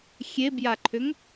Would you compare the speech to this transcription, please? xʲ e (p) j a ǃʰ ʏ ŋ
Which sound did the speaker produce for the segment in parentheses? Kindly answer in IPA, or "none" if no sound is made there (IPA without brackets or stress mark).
b